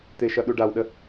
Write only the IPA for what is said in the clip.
t̪ ɪ ʃ ʌ ɗ u ɖ a w ɗ ə

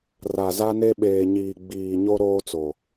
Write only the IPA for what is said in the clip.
r a˨ z a˦ n e˦ ɓ eː˨ ɲ iː˨ ɡ͡b iː˨ ɲ o˦ ɾ oː˦ t͡s o˨

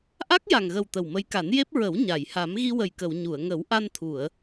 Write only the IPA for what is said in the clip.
ʔ a˦˥ k̚ j a˨˩ ŋ ɣ ə˨˩ w t̪ ə˨˩ w m ə˧˥ j k a˨˩˦ n j e˦˥ p̚ ɹ ə˨˩˦ w ɲ a˨˩˨ j h a˨˩˦ m ɣ i˧ w ə˨˩ j k ə˨˩˨ w ɲ u˨˩˨ ə̯ ŋ ə˨˩˦ w ʔ a˧ n t̪ʰ u˨˩˨ ə̯

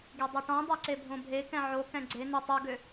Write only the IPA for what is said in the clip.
ɡ e dˤ e ʈ ɔ̃ dˤ o ǀ e bʱ õ bʱ e k ɛ̃ ʕ o k ɛ̃ ɡ͡ǀ e n ø tˤ o ɡ ø

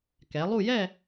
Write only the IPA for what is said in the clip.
k ɛ˩˧ lˠ u˥˧ j ɛ˥˧

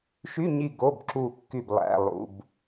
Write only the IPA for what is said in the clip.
ʃ y˧˥˧ ɲ i˦˨ ɡ o˧˥˧ b ǁ u˦˨ kː y˦˨ b lˠ æ̰˧˥˧ lˠ ṵ˧˥˧ b

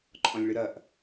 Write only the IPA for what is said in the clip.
ǃʼ ɔ̃ lʲ ɭ ɨ ɾ ɐ ʔ

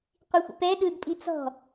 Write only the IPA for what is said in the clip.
qʷ i xʷ ḭ p ɛ ɗ ɯ d pʼ i t͡s ɔ̤

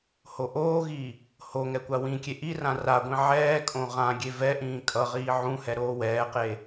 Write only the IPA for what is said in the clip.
h o ʔ oː ɣ i | h o ŋ ɛ kʷ a w ĩ kʲ e ʔ i r ã r a ɡʷ ĩ ʕ ɛː kʼ õ ʁ ã ɡʲ e v ɛ ʔ ĩː kʼ ʌ ʁ iː ʕ ũ h ɛ ɾ oː w ɛː q e

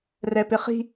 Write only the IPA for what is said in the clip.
r ɛ p ɪ χ i̤

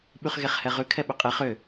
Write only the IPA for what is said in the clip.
ɓ ʉ χ ɣ e χ h ɛ ʁ ʉ kʰ ɛ ɓ ʏ qʼ e χ ʏ

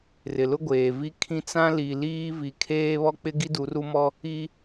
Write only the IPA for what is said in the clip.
r ɪ˨ l ʊ˦ ɡʷ eː˨ v i˦ kʰ ĩ˦ t͡s ã˦ l i˨ l iː˦ v i˨ kʰ eː˦ β ɔ˦ k͡p ɪ˦ ɡ i˦ d u˨˦ r u˦ m ɔ˦ | i˦

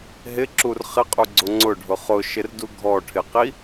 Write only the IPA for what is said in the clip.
ɦ ɪ ǁ u r χ ɪ qʼ u ɡ͡ǀ ʊ ŋ͡ǀ ʊ ɖʱ ʊ χ ʊ ʃ ɪ r d u ɡʱ ɔ ʈʰ ɪ q i

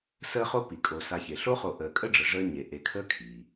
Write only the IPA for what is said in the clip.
s əː˦ χ o˦ p i˩ kʼ o˨ s a˨ ç e˩ ɬ o˥ χ o˨ ʔ əː˨ kʼ ə˥ ɖ͡ʐ ə˨ ʐ əː˦ ɲ e˩ ʔ e˨ kʰ əː˦ kʰ iː˩

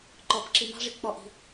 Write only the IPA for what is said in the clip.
ǃ ɔ b ǁ i m ɑ̤ ʐ i k͡p ɔ ʔ i̤

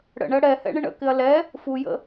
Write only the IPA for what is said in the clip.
ɽ ə̰ ɳ ə ɽ ɛ h ɛ̰ ɳ ɪ ɳ ə̰ k ɪ ɐ̯ l ɛ | f u j ə̰

